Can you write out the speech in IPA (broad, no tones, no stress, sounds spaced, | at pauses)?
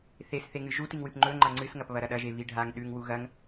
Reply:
θ e s θ e ŋ ɨ ʒ u t i ŋ w ɨ p ŋ͡ǃ ɵ ŋ͡ǃ a ŋ͡ǀ ɨ s ŋ ɐ p β ɐ ɾ ɐ ɗ ɐ ʒ e β i ɖʱ a ŋ ɗ ʉ ŋ w u ɣ ɐ ŋ